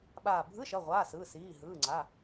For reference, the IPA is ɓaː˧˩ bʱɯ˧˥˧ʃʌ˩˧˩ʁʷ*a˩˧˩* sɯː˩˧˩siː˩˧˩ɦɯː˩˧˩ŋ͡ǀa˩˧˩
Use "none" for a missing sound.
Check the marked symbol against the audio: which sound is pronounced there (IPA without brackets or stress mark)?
aː˩˧˩